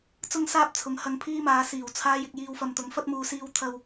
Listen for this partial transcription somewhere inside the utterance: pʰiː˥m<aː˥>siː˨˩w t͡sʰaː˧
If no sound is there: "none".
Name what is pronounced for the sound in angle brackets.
aː˨˧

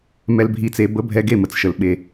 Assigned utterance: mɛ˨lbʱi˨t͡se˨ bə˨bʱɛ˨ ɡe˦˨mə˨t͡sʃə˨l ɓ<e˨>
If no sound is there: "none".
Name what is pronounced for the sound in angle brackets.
e˨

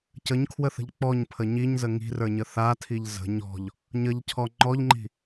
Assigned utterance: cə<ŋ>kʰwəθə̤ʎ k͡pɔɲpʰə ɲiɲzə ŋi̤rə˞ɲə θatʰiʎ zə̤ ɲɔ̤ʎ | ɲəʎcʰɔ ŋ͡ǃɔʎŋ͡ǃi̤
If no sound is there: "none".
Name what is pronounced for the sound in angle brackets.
ɲ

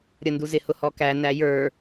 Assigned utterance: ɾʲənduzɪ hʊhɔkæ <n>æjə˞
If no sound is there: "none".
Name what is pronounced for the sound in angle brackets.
n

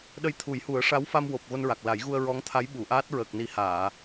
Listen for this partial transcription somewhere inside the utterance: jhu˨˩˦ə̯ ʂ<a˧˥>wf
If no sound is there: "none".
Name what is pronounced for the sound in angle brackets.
a˧˥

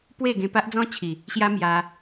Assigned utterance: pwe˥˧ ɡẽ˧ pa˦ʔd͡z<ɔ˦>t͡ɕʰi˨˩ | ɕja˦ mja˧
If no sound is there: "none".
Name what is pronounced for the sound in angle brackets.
ɔ̃˦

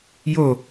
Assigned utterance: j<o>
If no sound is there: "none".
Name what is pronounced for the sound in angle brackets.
o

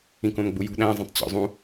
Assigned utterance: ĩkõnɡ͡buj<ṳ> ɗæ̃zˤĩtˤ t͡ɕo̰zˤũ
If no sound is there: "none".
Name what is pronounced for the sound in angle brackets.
ṳ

